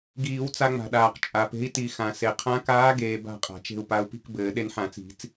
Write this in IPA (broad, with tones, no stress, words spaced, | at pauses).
ɡiː˨˩˦wt͡sa˧ŋ͡ma̤˩ɗaː˩q t͡ʃʼa˩pe̤˧˥i̯ti˨˩˦xã˩ se˩qʰã˧˥kaː˧˥ ɡeː˧ba̤˥˨qʼa̤˩t͡ʃe̤˥˨u̯ pa˧u̯pi̤˥˨k bɘː˨˩˦ɗe˧nħã˨˩˦t͡si̤˨˩˦t͡s